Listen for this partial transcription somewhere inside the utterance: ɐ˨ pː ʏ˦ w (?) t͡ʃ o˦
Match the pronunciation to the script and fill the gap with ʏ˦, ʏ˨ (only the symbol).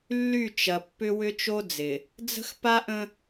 ʏ˦